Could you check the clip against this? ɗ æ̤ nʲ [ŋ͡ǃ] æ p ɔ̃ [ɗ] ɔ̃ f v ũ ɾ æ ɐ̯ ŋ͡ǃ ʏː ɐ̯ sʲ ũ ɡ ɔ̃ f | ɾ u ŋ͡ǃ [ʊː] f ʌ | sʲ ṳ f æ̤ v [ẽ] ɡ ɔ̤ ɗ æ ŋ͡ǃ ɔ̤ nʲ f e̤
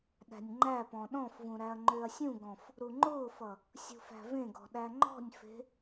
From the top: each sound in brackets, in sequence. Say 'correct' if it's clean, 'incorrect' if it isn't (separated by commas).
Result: correct, correct, correct, correct